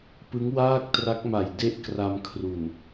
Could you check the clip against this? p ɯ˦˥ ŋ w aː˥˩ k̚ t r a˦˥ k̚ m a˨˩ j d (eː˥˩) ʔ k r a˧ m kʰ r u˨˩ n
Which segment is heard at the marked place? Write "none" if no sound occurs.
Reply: e˥˩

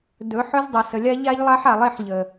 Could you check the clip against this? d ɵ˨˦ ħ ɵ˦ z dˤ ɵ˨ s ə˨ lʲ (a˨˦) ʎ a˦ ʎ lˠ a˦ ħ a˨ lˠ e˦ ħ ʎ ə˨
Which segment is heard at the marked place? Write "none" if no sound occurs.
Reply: a˦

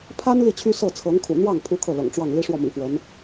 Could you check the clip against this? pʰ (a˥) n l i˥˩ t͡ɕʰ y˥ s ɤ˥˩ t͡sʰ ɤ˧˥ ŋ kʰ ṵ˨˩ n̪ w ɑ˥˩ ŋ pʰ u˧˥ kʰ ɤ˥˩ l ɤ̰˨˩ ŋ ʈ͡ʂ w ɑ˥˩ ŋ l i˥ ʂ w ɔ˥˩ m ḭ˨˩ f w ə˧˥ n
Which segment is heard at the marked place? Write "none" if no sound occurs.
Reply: a˥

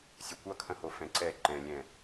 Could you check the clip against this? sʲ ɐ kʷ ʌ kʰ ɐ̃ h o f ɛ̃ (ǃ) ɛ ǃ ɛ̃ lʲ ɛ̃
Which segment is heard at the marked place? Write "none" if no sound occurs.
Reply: ǀ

